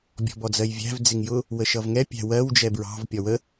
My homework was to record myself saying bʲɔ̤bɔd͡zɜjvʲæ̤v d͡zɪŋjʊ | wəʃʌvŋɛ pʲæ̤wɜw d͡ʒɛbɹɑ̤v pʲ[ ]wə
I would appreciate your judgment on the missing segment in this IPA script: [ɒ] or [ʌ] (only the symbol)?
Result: ɒ